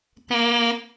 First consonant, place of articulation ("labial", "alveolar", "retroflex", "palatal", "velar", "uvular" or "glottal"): alveolar